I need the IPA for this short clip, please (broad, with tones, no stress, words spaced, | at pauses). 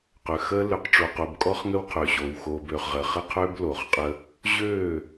qø˨xəː˦ lø˨qʈ͡ʂoː˨qo˨bkʼɔ˦χ ŋə˦wqʰø˨ɕoː˨w xoː˨bøː˨χʁəː˨ χə˦qʰø˦b lo˨χqʼə˦ | ʑøː˦˨